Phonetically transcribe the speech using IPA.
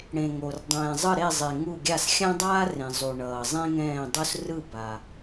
ɽ ẽ˨ ŋ o˨ r dˤ ɛ̃ː˨ zˤ ɯ˦˨ ɾ e˦˨ zˤ e˨ ŋ u˦˨ ɡʲ a˦˨ s xʲ ã˥ dˤ aː˥ r ẽ˨ zˤ u˨ ɳ ʌː˨ zˤ ẽ˥ ŋ ɛ̃ː˦˨ dˤ o˥ s r ɯ˦˨ b a˨

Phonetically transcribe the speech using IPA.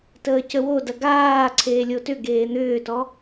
t əː c ə w o d ɐ ɡ aː ǀʰ eː lʲ o t ʏ ɡ eː n̪ ʏː t ɔ

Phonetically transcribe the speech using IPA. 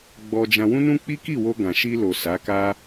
ɡ͡b ɔ˧ d͡ʒ ã˧ w ũ˦ n ũ˦ k͡p i˦ k i˦˨ w o˧ ɡ ã˨ ʃ i˧ l o˨ s a˨˦ k a˦

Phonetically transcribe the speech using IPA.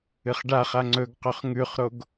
ɨ χ ɖ a χ a ŋ͡ǀ ɵ ɡ q ɵ χ ŋ ʉ χ ɾ o ɡ

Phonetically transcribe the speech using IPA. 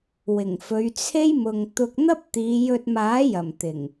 w ɪ˨˩ ŋ f ɵ˨˧ ɥ t͡sʰ e˥ j m ʊ˨ ŋ t̪ ʊ˧ k̚ n̪ ɐ˥ p̚ t̪ iː˨˧ j ɵ˧ t̚ m aː˨˥ j ɐ˨˩ m t̪ ɪ˨˩ ŋ

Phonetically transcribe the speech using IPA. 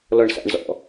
l ɔ ɳ s a̰ ɳ z ɔ̰

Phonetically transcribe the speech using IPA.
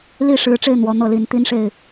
l i˥˨ ʂ ɻ̩˨˦ ʈ͡ʂ e˧ ɪ̯ n̪ w ɔ˨˦ n̪ ɤ˥˨ l i˨˦ n t̪ i˦ n ʂ e˥˨ ɪ̯

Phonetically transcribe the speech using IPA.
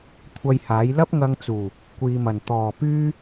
kʷʰ ɐ˧ j h aː˨˥ j l ɐ˥ p̚ ŋ ɐ˧ ŋ t͡s uː˨˩ | kʷ iː˨ m ɐ˨˩ n t̪ ɔː˨˩ p yː˥

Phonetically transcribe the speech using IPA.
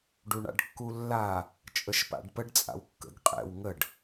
ɖ u ɳ a̰ ɖ kː u lː a | t͡ʃʼ ə ʃ p a̰ ɖ p ə ɖ t͡sʼ a̰ w kː ə̰ ɡ qʼ ɛ̰ w ŋ ə ɖ

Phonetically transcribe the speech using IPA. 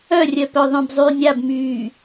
œ rʲ œ p œ ðˤ œ̃ b zˤ yː nʲ a b m yː

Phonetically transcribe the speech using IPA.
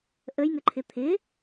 ʔ ə j ŋ ə ǃʰ ɪ t̪ʰ ɪ

